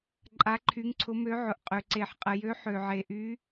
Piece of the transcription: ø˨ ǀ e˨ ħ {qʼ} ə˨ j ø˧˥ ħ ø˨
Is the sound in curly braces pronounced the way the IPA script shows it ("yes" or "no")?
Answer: yes